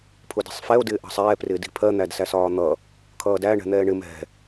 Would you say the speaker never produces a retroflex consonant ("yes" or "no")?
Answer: no